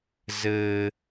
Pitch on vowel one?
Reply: high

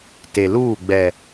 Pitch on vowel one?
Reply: low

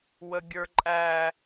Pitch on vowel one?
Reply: high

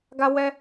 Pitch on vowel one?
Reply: high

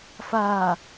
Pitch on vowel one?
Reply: low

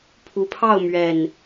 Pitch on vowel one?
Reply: low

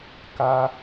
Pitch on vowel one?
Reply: high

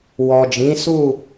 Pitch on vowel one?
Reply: low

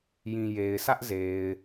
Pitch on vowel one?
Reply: low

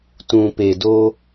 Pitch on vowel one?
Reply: low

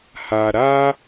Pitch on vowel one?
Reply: low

